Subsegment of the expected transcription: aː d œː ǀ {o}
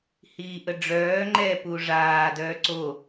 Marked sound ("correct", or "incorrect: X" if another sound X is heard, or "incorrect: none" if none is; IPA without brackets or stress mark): correct